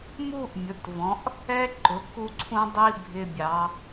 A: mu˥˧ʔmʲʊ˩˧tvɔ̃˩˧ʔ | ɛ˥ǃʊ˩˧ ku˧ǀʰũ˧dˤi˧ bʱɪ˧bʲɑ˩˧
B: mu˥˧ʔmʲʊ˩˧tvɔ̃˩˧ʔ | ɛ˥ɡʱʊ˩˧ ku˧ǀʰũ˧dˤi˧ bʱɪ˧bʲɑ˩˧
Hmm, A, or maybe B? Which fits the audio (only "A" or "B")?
A